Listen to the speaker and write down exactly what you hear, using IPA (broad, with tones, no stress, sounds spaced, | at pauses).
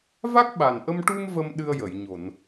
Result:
v a˦˥ k̚ ɓ a˨˩ n ʔ ə˧ m ʈ u˧ m v ə˧ m ɗ ɨ˧ ə̯ j ə˨˩˨ j ɲ o˨˩˨ n